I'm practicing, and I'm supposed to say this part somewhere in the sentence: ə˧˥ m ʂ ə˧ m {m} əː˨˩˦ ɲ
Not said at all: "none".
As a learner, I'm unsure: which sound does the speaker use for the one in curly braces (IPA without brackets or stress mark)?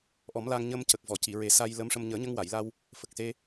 ɲ